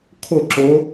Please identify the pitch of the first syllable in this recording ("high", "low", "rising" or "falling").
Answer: falling